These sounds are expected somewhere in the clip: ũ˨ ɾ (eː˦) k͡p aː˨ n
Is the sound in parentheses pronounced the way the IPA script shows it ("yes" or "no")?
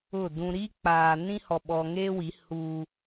no